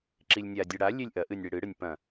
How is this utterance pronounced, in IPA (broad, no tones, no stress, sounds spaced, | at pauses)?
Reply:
ǁ i lʲ nʲ a dʲ ɨ ɽ a lʲ e lʲ ʔ ɐ ʔ ɨ nʲ ɽ i ɽ ɨ ɽ ɨ nʲ p ɐ̃